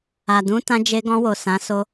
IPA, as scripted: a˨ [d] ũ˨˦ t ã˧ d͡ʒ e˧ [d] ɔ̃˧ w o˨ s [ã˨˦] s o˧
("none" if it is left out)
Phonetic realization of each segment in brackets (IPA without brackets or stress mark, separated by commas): d, ɡ, ã˨˦